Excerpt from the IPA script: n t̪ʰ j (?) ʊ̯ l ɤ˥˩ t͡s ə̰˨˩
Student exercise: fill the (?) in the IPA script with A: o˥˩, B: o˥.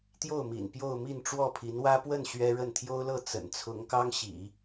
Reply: B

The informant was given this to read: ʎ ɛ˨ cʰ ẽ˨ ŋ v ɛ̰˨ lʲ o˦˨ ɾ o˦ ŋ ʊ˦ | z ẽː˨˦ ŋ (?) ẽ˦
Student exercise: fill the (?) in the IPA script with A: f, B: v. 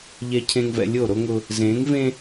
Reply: B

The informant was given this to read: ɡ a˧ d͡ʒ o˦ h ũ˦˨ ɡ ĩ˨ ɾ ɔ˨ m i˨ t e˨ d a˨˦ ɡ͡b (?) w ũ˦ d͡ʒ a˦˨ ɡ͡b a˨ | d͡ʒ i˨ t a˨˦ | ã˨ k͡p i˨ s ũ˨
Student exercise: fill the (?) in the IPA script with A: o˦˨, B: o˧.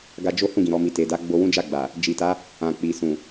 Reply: B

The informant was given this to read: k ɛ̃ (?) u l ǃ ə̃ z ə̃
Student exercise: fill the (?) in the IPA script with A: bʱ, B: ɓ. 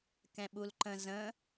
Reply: B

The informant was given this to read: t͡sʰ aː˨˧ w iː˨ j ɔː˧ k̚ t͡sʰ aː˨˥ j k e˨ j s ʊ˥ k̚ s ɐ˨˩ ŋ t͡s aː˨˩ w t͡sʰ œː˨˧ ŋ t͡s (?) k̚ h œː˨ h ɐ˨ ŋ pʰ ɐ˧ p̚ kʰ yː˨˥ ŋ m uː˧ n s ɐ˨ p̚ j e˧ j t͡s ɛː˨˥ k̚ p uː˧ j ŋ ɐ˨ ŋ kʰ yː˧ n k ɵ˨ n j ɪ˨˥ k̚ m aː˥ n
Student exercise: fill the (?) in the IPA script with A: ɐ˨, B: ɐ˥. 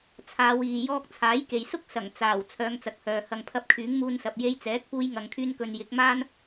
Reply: A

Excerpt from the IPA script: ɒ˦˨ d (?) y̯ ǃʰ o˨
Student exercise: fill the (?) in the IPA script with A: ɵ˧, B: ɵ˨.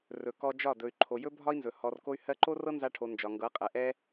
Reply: B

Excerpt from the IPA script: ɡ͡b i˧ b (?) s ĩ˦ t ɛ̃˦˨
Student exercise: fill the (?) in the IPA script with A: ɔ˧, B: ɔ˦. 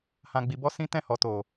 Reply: B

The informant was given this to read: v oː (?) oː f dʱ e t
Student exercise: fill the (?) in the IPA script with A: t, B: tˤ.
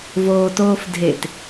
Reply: A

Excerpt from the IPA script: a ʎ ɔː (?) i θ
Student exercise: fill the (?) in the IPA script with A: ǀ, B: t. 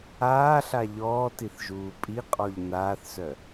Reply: B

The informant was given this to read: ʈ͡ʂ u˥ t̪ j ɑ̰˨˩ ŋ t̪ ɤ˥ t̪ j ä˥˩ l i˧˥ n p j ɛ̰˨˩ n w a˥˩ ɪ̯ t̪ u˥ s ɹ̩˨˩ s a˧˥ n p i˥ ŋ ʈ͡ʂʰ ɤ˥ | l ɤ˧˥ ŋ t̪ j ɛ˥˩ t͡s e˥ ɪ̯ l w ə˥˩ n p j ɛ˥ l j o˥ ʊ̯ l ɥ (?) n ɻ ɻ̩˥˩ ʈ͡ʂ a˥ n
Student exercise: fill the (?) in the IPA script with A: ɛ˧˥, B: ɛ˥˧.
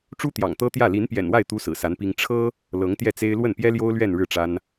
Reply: B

